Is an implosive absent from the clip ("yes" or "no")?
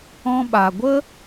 no